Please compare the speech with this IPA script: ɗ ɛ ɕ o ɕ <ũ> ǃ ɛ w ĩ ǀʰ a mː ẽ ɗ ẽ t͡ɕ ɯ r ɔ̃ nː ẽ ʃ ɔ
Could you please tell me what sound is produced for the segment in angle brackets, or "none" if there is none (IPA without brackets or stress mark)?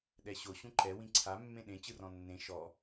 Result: ũ